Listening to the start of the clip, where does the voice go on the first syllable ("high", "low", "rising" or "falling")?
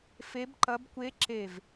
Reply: rising